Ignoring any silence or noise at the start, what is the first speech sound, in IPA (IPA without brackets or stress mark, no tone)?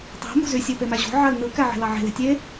tˤ